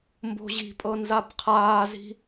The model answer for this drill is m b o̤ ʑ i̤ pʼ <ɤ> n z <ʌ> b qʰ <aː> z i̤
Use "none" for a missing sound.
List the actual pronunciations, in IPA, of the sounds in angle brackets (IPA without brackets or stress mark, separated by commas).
ɤ, a, aː